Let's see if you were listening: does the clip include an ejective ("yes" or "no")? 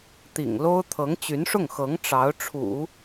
no